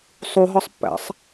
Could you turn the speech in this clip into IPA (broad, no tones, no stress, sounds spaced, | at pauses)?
sˤ u ɦ ɒ sˤ pː æ̰ sˤ